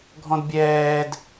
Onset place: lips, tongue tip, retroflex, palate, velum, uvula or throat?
velum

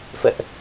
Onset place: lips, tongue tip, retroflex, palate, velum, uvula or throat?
lips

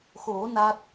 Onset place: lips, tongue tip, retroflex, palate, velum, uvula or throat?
velum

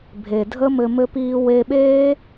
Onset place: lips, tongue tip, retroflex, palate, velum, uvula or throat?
lips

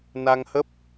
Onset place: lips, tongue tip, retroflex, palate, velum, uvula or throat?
tongue tip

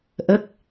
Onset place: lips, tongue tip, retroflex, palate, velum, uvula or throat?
throat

